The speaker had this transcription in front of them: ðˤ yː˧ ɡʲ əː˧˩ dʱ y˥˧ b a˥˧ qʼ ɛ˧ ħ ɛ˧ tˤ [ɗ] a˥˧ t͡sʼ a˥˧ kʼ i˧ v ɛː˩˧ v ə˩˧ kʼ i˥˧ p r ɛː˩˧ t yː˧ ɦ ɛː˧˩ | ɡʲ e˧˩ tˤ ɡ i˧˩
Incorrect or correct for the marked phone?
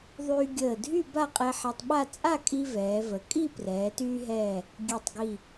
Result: incorrect: ɓ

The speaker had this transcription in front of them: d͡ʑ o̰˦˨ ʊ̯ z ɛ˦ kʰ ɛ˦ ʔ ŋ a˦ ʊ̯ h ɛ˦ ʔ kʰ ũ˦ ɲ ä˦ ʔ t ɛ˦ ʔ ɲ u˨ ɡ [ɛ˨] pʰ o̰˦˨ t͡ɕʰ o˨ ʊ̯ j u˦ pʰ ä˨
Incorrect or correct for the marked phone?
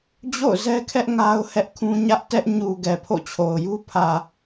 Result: correct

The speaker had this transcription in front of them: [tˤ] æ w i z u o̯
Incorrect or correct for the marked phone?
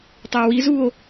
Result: correct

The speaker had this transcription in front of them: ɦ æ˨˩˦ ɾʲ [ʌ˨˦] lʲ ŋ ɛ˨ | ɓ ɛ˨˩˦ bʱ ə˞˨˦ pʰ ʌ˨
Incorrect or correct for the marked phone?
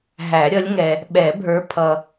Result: correct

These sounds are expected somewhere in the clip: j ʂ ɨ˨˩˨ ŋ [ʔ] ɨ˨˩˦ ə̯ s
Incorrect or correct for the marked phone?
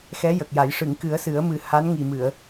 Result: incorrect: k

